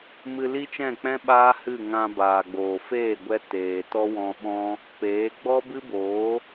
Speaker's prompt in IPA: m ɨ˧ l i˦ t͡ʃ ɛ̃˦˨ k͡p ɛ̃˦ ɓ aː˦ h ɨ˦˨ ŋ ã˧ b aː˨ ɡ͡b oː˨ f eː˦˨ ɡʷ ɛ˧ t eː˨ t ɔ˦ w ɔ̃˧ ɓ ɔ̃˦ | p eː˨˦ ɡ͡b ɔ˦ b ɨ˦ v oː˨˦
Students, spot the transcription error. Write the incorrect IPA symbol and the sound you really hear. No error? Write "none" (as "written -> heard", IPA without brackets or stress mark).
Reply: v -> b